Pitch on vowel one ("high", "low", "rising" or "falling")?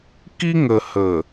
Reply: high